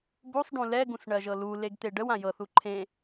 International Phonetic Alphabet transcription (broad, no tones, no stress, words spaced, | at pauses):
busˤɖũ lɛɡũsɳɜʒɤ luleɡt̪e ɖəwã jɤθu ǃʰẽ